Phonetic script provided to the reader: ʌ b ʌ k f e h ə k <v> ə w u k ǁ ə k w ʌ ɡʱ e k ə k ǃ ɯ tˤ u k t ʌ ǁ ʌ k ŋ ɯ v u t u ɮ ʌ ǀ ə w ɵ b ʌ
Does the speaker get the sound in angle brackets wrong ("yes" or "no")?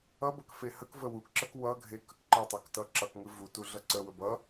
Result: no